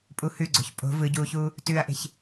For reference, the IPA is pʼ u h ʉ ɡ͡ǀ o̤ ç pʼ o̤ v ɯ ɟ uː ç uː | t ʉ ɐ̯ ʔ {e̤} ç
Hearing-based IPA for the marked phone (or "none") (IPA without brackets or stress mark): e̤